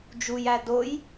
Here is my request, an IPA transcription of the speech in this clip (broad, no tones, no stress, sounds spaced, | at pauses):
d͡ʒ u j æ d o j